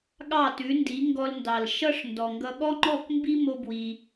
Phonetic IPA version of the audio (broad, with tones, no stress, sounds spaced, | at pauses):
ɠ ɑ˥˩ t ʉ˩˥ n d i˩˥ ŋ ɡ ɔ˧ l n d ɑ˩ l ʃ ʌ˥ ʂ n d ɔ˩ ŋ ɡ ʌ˧ ɠ ɔ˥ ŋ͡ǃ ɔ˥˩ k m b i˥ m o˧ b w i˩